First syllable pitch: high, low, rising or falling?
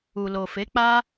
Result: low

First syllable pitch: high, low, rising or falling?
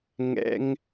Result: high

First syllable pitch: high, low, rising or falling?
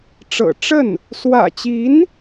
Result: low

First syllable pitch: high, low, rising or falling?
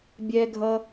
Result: low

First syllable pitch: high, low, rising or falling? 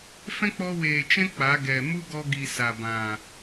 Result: high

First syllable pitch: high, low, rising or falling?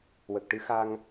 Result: low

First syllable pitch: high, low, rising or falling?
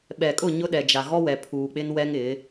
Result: low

